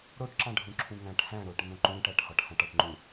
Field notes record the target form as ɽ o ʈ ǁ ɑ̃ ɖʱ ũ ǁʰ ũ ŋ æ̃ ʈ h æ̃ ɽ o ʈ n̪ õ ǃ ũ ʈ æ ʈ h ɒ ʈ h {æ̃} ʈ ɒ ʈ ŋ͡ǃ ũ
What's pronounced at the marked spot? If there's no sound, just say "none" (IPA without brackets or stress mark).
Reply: æ̃